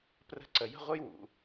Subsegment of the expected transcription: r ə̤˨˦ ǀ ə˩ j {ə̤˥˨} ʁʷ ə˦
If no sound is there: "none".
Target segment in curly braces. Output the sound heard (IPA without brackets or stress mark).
ə̤˥˨